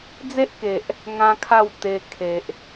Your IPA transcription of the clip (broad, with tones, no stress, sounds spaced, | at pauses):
d͡z e˦ ʔ k e˨ ʔ | ŋ ã˦ kʰ a˥˧ w t̪ e˧ kʰ e˨ ʔ